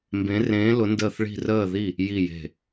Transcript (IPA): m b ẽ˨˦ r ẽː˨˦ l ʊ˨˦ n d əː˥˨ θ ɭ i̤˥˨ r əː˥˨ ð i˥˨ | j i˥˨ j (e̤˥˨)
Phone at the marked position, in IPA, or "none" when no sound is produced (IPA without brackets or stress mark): e̤˥˨